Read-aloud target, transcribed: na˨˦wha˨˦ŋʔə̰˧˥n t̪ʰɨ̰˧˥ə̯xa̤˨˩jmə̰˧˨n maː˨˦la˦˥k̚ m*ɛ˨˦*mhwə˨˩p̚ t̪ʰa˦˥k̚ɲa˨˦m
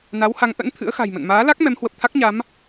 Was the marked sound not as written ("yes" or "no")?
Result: no